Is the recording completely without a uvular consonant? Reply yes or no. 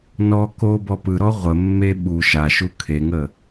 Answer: no